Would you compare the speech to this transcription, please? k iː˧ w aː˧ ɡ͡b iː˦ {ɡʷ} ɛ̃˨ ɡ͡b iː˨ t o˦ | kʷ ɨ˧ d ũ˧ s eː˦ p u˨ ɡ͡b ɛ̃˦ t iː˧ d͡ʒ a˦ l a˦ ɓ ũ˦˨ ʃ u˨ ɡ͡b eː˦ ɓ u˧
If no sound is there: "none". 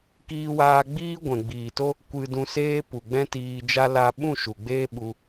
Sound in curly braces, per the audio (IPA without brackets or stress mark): ɡʷ